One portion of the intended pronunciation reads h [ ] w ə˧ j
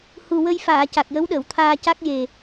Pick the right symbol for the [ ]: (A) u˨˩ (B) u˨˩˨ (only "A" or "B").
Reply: A